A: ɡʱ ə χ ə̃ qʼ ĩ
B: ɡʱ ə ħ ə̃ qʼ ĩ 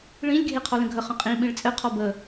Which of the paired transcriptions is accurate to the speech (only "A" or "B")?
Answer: A